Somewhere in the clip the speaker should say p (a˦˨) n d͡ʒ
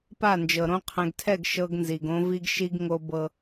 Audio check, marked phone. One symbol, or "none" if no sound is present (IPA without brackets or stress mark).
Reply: a˦˨